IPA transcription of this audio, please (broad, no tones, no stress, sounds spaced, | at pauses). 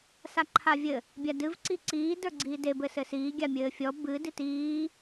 s a ǃʰ a vʲ ɘ | bʲ a d ɨ v ǀ i ǀ iː d ə˞ ɡ͡ǀ iː d e b ɘ s ɘ s iː ɡʲ a mʲ ɘː fʲ ɔ b ɨ d i t iː